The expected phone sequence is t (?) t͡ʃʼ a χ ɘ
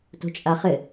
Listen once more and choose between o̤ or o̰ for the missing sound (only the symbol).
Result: o̤